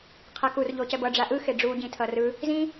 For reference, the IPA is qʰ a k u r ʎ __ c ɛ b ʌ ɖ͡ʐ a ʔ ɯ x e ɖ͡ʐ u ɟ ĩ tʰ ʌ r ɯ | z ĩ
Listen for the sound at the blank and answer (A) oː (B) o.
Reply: B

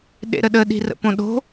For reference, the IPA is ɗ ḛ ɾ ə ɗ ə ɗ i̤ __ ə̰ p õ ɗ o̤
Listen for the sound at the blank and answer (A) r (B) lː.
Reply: A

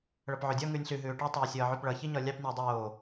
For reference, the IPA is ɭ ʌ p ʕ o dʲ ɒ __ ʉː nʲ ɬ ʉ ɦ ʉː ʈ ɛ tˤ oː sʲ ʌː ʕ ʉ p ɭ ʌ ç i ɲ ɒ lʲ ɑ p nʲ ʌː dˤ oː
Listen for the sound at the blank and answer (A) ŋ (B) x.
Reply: A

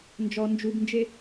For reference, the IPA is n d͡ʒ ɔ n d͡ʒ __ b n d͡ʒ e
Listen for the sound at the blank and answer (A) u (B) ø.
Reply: A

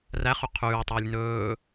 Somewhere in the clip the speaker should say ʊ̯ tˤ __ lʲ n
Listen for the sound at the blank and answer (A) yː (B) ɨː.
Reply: A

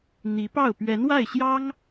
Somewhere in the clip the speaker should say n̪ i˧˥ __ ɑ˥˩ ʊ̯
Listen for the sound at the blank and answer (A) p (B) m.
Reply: A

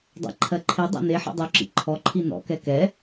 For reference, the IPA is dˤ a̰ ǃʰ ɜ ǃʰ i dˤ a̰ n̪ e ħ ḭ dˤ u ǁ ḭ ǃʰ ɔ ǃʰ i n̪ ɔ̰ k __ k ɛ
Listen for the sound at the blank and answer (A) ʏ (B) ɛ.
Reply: B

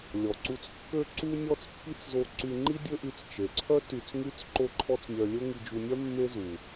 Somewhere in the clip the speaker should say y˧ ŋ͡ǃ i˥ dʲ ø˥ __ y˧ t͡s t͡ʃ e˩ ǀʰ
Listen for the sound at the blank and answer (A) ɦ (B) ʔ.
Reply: B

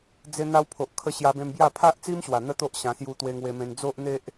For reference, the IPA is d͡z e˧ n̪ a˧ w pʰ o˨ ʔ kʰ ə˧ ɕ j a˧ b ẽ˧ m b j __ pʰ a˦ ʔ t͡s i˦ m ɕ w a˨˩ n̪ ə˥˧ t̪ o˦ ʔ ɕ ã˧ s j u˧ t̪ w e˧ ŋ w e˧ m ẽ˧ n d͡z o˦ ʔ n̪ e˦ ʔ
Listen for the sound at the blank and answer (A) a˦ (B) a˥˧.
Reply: B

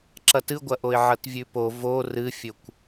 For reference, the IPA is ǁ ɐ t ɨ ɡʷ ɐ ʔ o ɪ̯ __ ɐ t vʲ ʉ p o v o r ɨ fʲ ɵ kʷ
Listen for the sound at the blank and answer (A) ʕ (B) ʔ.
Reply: A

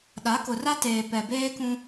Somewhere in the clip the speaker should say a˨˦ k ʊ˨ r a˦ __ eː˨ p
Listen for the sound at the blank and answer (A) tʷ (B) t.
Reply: B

